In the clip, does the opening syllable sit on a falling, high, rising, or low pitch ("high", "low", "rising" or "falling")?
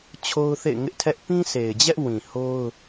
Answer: high